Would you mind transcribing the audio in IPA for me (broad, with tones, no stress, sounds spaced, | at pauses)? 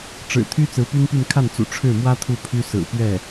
ʈ͡ʂ ɻ̩˨˩ t̪ʰ y˥ t͡s ɹ̩˧˥ p y˥ n p y˥˧ n kʰ a˥˩ n t͡s ṵ˨˩ ʈ͡ʂʰ ɻ̩˥˩ m w ä˥ t̪ʰ u˥˩ pʰ y˥ s ɹ̩˨˩ p ɥ ɛ˥˩